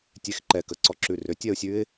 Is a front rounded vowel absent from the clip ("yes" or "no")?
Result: no